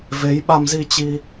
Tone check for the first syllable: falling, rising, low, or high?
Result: rising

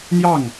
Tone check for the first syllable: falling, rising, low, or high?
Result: falling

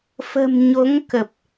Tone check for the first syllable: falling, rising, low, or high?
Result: low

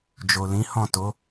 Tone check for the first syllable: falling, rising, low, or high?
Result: low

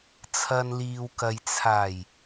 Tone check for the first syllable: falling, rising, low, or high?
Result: low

